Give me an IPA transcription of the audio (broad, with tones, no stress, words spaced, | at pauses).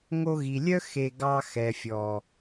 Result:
ŋo˧ɣi˨lʲœ˦ xe˧ ɡɑ˧xɛ˨fʲɔ˨